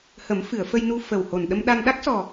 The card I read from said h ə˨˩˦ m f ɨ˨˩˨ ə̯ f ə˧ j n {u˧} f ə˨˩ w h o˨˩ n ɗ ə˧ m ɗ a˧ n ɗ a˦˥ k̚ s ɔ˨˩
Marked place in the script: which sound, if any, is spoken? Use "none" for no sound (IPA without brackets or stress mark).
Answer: u˧